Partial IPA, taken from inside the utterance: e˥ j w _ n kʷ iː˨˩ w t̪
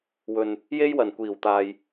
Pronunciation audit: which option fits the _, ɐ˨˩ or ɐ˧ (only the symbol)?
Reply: ɐ˨˩